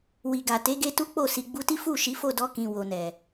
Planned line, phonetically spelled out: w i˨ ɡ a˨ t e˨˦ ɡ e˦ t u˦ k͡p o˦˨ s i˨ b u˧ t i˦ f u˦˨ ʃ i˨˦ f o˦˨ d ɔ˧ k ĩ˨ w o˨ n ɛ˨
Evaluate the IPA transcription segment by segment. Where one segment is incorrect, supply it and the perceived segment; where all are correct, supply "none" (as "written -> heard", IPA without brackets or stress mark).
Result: b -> ɡ͡b